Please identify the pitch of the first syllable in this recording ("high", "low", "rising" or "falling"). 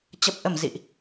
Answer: low